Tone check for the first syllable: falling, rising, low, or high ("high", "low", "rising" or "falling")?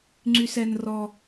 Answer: low